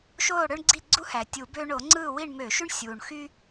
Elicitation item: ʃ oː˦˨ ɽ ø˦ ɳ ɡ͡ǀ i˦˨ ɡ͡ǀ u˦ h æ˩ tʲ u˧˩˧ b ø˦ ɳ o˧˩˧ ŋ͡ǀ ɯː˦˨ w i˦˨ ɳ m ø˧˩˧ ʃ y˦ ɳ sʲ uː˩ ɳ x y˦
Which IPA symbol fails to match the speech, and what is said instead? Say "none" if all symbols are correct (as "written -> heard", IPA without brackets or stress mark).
none